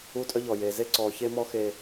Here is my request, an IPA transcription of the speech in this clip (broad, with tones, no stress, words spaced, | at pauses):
uː˦tʼœ˦ ʎɔ˨jeː˨ ze˦ǀɔː˨çe˦mɔ˦ xe˦